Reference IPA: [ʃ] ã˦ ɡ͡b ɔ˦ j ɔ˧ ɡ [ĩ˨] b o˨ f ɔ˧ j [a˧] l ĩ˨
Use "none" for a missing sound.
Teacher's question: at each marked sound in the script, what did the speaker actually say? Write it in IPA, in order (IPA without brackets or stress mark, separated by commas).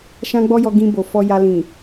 ʃ, ĩ˧, a˧